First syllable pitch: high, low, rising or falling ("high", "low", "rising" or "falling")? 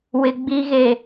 low